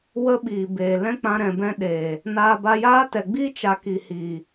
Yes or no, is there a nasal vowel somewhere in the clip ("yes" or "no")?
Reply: yes